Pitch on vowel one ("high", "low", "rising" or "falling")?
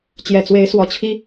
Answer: low